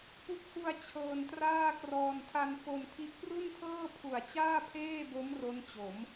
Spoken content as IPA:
pu˦˥k̚hu˧a̯ t͡ɕʰɤː˧ntraː˥˩krɔː˧n tʰa˧nfo˧ntʰi˦˥ʔ pru˥˩ntʰɤː˥˩pʰu˨˩a̯ t͡ɕaː˥˩pʰeː˥˩bo˦˥m ro˦˥nt͡ɕo˩˦m

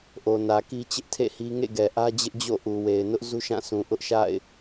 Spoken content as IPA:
ʔo˨nä˨ki˦ t͡ɕɪ˦ʔtʰḛ˦˨hi˦ ŋḛ˦˨ ɡɛ˨ʔä˦d͡ʑɪ˦ʔd͡ʑo̰˦˨ ʔu˨we˨ɪ̯nʊ˦ʔ zu˦ʃã˦˨sũ˨ ʔʊ˦ʔʃa̰˦˨ɪ̯

